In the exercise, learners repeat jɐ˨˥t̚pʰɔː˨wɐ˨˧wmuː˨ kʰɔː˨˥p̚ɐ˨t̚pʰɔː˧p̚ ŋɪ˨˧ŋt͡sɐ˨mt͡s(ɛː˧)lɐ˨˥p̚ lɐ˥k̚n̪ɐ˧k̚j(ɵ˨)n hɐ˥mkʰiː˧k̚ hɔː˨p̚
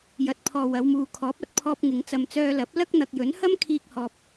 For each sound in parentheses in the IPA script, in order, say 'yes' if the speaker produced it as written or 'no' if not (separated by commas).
no, no